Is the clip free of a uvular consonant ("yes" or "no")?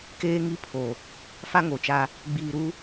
yes